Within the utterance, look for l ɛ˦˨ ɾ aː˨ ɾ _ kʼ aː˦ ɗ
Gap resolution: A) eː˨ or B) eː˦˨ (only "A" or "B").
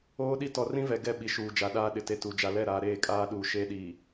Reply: B